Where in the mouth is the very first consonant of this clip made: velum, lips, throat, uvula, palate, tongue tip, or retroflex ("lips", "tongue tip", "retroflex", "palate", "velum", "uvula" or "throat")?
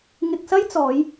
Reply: velum